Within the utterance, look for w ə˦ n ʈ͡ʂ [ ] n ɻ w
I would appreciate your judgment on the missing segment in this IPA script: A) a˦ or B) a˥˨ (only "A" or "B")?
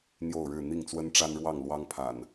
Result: A